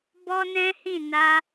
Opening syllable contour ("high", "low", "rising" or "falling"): high